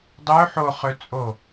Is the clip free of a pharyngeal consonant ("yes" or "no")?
no